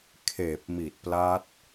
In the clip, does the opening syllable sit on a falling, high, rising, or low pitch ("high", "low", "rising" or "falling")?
low